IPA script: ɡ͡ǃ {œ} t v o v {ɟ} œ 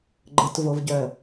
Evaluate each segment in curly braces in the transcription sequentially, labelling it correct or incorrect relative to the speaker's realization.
incorrect, correct

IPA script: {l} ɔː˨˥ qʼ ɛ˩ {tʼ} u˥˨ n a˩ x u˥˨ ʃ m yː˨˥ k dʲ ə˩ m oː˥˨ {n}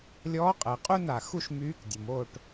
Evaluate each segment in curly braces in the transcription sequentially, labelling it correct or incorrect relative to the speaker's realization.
incorrect, incorrect, incorrect

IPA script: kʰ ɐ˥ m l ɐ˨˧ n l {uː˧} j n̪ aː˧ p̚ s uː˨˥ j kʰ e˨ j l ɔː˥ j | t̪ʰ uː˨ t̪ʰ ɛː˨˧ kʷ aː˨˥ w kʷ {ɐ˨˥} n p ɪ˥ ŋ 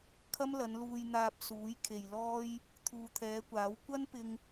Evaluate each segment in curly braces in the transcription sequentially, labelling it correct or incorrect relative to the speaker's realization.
correct, incorrect

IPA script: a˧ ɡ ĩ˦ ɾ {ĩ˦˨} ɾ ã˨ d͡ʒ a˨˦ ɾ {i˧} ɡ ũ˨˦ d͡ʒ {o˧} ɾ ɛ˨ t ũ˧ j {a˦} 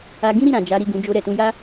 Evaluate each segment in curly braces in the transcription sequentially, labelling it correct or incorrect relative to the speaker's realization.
incorrect, incorrect, correct, correct

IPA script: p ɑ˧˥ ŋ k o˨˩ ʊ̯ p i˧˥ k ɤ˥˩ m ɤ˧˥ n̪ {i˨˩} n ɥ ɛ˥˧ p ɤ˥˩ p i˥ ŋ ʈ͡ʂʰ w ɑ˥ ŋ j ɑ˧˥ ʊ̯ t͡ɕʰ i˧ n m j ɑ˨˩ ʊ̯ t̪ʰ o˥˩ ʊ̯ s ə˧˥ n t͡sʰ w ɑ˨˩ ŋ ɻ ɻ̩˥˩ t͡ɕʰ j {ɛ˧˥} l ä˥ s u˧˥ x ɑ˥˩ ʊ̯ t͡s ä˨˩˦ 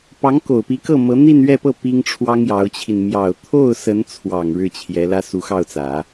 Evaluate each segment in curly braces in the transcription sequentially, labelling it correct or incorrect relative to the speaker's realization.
incorrect, correct

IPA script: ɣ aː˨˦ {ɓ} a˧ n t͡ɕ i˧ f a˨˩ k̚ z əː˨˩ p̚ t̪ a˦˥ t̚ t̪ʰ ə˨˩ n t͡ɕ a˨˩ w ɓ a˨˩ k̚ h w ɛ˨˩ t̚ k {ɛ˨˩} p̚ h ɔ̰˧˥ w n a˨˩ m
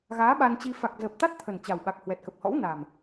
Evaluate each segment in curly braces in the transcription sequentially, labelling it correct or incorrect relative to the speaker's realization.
correct, incorrect

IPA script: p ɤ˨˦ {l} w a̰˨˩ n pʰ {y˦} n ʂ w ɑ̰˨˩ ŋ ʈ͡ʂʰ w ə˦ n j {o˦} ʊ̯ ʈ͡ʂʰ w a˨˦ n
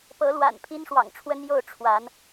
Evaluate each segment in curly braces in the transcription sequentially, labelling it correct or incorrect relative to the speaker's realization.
correct, incorrect, incorrect

